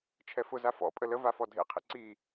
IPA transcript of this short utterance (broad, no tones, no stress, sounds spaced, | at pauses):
t͡ʃʰ ɛ f ʊ z a f ɔ̰ pʼ ə l ə v a f ɔ dʱ ḛ qʰ ḭ ǀ i